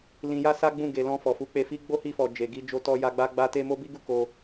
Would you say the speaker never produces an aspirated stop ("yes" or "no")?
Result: yes